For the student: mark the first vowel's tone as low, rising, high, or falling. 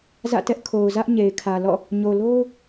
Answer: falling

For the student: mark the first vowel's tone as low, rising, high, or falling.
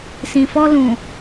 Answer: low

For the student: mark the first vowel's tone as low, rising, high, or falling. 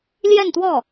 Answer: falling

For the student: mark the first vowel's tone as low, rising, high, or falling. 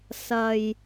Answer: low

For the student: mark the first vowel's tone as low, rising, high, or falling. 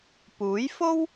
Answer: rising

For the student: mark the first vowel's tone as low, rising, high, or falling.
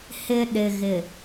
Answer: high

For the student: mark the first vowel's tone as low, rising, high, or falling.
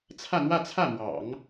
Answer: falling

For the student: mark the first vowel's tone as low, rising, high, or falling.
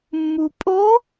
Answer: low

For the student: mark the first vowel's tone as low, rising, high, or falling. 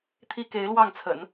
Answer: high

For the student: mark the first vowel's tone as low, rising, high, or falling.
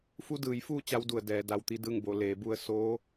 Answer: rising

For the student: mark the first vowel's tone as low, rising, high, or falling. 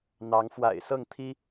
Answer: rising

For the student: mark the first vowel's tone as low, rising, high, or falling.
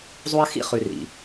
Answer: high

